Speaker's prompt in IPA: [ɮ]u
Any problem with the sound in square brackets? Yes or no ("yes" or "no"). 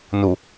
yes